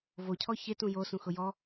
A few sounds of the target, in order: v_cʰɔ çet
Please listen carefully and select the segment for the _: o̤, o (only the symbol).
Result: o